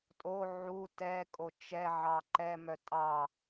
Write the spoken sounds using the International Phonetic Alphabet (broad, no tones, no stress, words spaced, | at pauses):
tʼo ʕu tɛ kʼot͡ʃɛ ʕɑǃɛmœ tʼɑ